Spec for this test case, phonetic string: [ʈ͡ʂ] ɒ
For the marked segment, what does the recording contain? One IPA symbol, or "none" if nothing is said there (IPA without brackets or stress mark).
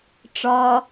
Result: ʈ͡ʂ